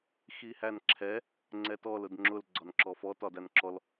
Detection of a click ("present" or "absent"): present